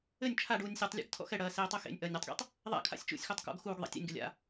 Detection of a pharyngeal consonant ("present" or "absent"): absent